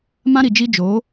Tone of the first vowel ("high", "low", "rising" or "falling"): high